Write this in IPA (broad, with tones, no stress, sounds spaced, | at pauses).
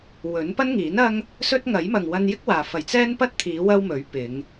w ɵ˨˥ n p ɐ˥ n ŋ iː˨˥ n ɐ˥ ŋ | s ɵ˥ t̚ ŋ ɐ˨˥ j m ɐ˨ ŋ w ɐ˧ n j ɪ˥ k̚ w aː˨ f ɐ˨ j t͡s ɛː˥ n p ɐ˥ t̚ t̪ʰ iː˨˧ w ɐ˥ w m ɵ˨˥ ɥ p ɪ˨˧ ŋ